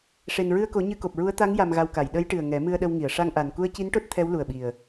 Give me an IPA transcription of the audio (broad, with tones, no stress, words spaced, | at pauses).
ʂe˨˩nɹɨ˧ə̯ko˨˩˦ ɲɨ˧ko˨˩p̚ɹu˧˥ə̯ t̪a˧˥ŋ ja˧mɣa˧wka˨˩˨j ɗə˧˥jʈɨ˨˩ə̯ ŋɛ˨˩˦mɨ˧ə̯ɗə˧wŋi˨˩˨ə̯ ʂa˧ŋʔa˨˩n ku˧ə̯ci˧˥nʈo˦˥t̚ t̪ʰɛ˧˥wlu˨˩ə̯ɓi˨˩ə̯